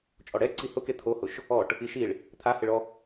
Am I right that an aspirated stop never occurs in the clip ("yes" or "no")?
no